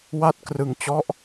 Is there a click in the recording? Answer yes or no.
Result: no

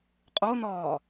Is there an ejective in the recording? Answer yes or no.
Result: yes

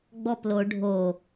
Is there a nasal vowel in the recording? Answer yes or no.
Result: no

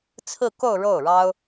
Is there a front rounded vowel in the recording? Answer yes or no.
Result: no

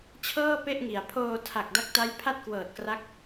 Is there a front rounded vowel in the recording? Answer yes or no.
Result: no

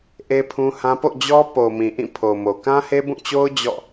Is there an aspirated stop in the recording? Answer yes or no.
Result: yes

